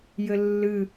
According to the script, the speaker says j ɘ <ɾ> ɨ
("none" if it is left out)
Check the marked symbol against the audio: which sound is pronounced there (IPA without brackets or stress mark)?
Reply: lː